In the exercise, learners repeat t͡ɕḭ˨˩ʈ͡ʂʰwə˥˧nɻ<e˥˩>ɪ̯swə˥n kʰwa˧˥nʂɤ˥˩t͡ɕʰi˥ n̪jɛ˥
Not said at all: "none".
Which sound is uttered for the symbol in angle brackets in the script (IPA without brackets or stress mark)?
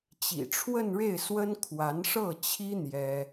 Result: e˥˩